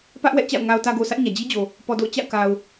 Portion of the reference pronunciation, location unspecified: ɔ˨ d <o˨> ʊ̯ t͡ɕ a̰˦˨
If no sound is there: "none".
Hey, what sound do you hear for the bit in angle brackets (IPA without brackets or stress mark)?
o̰˦˨